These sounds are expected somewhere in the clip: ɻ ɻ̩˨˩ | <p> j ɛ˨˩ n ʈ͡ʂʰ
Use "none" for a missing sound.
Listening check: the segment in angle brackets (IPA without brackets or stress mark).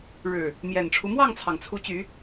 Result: m